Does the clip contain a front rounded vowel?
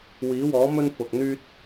yes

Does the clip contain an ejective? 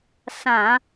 no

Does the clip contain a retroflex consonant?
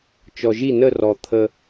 no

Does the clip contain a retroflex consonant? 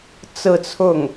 no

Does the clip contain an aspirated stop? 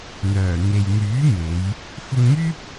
no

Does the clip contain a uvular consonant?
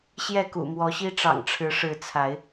no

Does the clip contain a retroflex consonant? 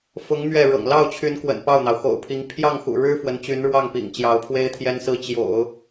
yes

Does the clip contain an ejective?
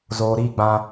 no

